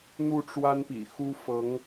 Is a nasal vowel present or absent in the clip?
absent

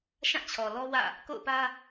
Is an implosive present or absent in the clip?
absent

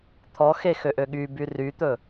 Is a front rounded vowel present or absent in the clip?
present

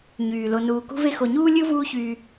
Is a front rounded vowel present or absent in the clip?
present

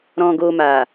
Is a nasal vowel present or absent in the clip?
present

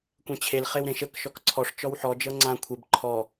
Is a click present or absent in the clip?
present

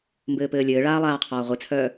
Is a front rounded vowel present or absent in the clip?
present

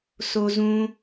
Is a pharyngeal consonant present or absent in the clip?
absent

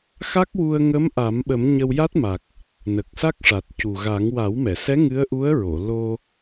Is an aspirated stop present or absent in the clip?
absent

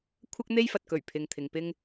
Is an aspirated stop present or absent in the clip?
present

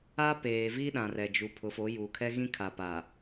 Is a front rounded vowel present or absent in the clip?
absent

